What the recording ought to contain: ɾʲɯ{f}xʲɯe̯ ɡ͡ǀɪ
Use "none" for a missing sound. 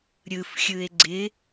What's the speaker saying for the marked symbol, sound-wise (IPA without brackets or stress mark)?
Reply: f